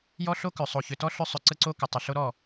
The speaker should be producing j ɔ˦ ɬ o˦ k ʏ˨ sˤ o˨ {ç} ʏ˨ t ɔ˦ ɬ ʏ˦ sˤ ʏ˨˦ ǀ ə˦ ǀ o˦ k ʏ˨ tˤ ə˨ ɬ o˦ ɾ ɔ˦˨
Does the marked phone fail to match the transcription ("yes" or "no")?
no